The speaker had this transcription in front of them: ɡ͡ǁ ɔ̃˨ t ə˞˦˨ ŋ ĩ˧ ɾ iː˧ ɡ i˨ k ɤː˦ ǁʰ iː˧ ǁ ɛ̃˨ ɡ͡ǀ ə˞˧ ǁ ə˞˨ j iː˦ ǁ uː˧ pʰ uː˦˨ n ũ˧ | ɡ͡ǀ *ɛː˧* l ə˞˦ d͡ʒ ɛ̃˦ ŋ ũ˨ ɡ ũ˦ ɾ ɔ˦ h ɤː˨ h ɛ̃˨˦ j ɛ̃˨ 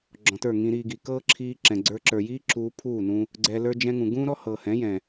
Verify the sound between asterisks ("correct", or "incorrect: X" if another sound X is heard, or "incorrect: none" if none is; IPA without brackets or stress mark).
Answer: incorrect: ɛ˧